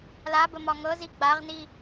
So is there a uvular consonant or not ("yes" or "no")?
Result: yes